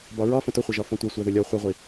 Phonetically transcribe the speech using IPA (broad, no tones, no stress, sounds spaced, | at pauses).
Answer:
b ɒ ɹ ɒ f ə̃ t ʊ χʷ ə ʒ ɒ f ɔ̃ tʷ ɛ sʷ æ ð ʊ lʲ ɔ χʷ i ʁʷ i